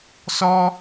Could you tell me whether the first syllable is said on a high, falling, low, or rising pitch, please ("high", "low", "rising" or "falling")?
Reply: high